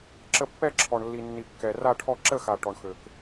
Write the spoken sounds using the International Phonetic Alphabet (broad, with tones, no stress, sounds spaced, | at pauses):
ǁ ə˥˧ pː ɛ˥˧ ǁʰ ɔ˨ ɳ lː i˨ nː i˨ kː ɛ˨ r a˥˧ ʈʰ ɔ˥˧ ǁ ə˥˧ x a˨ ʈ ɔ˨ ɳ x ø˨ k